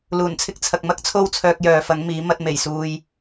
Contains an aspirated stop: yes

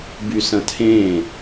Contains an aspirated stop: yes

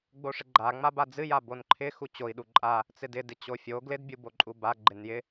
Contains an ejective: yes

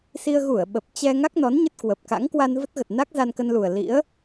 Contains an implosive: yes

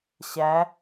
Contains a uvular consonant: no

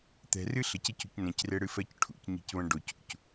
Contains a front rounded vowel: no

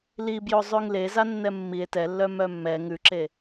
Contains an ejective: no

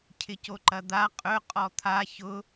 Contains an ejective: yes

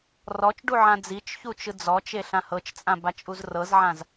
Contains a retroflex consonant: yes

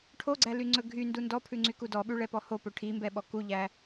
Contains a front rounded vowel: yes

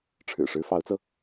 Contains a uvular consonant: no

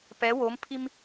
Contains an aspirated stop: yes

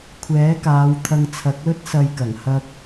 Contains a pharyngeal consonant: no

